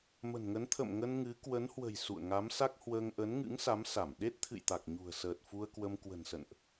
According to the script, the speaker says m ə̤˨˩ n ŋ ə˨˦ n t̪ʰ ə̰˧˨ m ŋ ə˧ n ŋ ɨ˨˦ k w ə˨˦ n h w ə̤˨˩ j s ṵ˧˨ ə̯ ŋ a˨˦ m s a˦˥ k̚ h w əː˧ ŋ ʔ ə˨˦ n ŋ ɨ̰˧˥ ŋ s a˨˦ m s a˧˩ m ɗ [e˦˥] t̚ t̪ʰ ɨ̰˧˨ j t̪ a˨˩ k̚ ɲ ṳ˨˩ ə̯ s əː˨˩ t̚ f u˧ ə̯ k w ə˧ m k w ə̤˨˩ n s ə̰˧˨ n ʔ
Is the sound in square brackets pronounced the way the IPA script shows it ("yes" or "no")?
yes